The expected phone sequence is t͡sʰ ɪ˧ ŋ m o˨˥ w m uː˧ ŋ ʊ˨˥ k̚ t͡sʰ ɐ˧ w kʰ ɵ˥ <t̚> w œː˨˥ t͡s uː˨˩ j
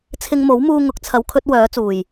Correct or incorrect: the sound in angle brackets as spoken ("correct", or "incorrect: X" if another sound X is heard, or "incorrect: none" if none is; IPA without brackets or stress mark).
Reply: correct